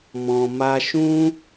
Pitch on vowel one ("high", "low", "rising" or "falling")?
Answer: low